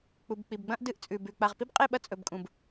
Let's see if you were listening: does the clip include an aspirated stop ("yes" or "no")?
no